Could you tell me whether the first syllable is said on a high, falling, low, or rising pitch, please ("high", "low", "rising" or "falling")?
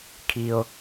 low